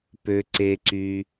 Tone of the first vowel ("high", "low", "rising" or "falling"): low